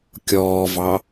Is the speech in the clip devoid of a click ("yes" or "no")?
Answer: yes